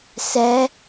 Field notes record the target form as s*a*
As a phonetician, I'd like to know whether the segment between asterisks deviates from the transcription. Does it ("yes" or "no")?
yes